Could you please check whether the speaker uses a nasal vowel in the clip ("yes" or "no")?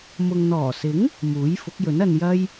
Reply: no